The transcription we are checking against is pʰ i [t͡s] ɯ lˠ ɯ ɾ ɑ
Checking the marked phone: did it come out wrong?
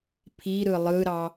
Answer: yes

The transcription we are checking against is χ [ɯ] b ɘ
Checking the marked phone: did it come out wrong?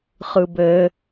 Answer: no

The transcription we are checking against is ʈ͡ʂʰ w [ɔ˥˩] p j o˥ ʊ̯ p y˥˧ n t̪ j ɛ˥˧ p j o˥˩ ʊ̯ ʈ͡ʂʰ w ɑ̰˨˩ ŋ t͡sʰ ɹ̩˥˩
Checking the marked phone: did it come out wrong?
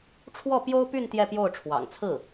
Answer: no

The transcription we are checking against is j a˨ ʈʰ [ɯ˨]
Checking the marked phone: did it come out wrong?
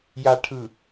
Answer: no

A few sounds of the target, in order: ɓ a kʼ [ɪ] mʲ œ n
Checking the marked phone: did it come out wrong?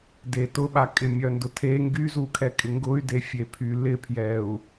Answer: no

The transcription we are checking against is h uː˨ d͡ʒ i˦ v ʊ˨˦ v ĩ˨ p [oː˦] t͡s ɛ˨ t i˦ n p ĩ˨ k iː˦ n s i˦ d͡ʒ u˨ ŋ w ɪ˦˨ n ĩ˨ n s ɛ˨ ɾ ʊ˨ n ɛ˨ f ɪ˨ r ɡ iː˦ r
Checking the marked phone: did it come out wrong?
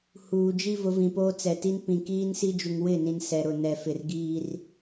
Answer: no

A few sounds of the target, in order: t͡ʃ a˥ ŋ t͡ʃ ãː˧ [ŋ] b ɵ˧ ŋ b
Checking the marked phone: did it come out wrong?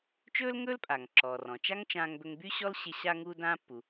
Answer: no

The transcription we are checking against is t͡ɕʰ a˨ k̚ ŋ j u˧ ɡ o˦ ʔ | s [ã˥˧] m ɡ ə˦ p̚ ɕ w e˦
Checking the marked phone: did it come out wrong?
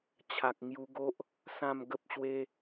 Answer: no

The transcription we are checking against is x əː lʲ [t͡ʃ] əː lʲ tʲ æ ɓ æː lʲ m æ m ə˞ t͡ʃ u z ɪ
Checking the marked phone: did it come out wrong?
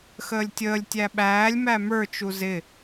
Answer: yes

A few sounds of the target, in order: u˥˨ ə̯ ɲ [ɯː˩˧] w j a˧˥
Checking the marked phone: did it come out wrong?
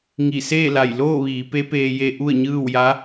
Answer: yes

